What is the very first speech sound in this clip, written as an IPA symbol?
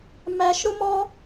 m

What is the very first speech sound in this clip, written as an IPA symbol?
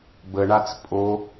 b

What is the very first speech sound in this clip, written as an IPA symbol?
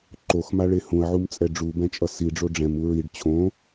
ǃ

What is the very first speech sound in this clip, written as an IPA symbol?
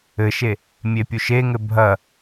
ɘ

